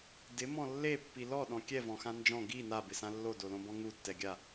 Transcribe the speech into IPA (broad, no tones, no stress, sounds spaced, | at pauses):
d ɪ m ɔ̃ lː e pː i l ɔ ɗ ɔ̃ kʲ ɛ v ɔ̃ x ã n d͡ʒ ɔ̃ ɡ i n a b ɪ s ã lː o d o l õ b ɔ̃ ŋ u tː ɛ ɡʲ a